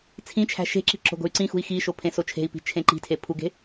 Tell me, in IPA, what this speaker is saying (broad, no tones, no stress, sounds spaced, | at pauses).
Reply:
t͡sʰ ĩ t͡ʃʰ æ̤ ʃ e̤ ǁ i̤ ǁ o̤ ɡ o̤ y̯ ǀ ĩ x ṳ i̯ x i ʃ o pʰ ẽ s o t͡ʃʰ e̤ i̯ p i̤ t͡ʃʰ ẽ ǃ i̤ tʰ e pʰ u ɡ e̤